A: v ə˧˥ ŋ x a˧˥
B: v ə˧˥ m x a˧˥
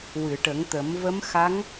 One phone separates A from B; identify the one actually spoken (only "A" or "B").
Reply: B